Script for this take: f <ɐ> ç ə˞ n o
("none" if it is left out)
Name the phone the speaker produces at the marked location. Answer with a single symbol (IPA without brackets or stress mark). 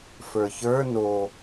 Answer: ə˞